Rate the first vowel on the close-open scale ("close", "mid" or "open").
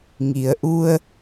close